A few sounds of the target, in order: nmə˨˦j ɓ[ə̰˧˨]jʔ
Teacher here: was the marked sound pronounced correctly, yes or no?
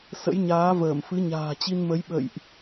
yes